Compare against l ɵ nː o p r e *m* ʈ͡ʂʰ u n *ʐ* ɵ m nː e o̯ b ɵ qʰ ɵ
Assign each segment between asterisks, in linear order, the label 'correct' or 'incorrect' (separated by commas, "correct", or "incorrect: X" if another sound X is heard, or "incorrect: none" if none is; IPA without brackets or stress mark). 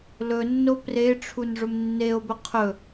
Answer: incorrect: none, correct